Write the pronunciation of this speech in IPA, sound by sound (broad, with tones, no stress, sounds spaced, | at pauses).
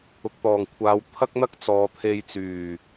ʊ˨ k̚ t̪ ɔː˨˩ ŋ kʷʰ aː˨˧ w t̪ʰ ɐ˥ k̚ n̪ ɐ˥ k̚ t͡s ɔː˨ t̪ʰ e˧ j t͡s yː˨˩